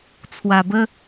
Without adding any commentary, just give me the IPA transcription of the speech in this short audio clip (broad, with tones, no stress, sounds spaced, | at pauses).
t͡sʰ w a˧ b ə˦